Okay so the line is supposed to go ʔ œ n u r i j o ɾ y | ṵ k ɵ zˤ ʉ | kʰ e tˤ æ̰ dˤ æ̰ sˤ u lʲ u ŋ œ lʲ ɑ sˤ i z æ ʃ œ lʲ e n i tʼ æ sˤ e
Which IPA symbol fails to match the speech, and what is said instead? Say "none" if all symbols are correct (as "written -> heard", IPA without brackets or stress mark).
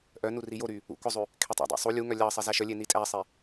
none